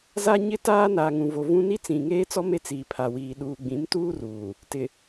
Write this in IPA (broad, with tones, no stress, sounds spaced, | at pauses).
z a˦ ɲ ɪ˦ t aː˦ n aː˨ ŋ ũ˨ v o˨ v ũ˦ n i˦ t͡s ĩ˨ ŋ eː˦ t͡s ɔ˦ m e˦ t͡s iː˨ pʰ a˨ w iː˨ ɗ uː˨ ɡ͡b ĩ˨˦ m t uː˦ r uː˨ | t ɪ˨